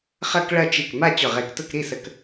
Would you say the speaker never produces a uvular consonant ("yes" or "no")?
no